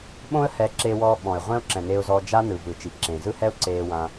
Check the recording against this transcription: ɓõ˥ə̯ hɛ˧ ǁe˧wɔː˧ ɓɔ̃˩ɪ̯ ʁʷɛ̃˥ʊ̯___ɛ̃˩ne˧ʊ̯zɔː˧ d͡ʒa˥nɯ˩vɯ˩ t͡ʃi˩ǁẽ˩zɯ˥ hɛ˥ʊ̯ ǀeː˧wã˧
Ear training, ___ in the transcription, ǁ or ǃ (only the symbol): ǁ